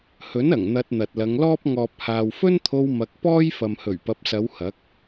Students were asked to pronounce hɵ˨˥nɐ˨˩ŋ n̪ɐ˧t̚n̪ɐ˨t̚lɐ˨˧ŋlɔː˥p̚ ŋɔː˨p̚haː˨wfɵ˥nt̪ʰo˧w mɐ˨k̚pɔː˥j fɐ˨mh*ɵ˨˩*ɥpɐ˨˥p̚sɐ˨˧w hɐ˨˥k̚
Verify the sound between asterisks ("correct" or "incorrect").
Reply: correct